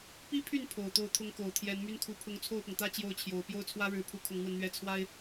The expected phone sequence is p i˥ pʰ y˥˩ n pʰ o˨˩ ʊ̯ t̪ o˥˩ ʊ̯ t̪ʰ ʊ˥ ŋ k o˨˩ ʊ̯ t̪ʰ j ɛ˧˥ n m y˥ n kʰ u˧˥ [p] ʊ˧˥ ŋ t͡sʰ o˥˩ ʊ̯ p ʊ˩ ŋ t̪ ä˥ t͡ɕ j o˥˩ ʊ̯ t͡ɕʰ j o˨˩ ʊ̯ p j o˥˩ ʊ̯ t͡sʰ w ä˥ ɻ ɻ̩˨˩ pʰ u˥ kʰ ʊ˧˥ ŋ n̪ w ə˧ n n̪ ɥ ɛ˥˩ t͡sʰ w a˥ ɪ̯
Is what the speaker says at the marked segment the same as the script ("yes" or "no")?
no